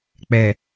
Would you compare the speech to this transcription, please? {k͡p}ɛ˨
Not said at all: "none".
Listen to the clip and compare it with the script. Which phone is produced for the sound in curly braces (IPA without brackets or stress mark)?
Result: k͡p